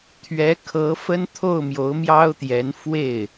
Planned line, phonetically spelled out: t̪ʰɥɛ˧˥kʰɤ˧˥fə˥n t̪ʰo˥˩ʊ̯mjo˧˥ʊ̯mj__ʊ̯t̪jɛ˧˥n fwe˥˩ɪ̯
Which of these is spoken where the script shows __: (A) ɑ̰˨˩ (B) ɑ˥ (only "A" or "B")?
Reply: B